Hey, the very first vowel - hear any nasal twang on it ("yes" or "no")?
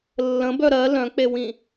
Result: yes